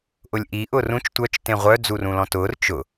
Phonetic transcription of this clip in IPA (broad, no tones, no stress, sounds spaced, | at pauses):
ʔ ʊ lʲ ʔ i ʔ ʊː r ũ t͡ʃ tʷ œ t͡ʃ t ẽ ʁʷ œ d͡z u r ũ l ɔ̃ t ʊː r t͡ʃ ʊ